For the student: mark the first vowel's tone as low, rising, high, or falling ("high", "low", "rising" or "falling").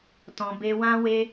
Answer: low